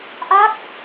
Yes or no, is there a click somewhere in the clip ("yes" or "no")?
no